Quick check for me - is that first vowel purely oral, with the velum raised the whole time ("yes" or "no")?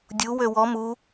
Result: yes